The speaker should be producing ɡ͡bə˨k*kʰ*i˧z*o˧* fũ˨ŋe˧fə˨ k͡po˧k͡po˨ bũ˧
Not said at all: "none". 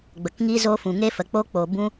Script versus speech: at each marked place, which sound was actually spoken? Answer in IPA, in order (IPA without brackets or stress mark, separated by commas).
ŋ, o˧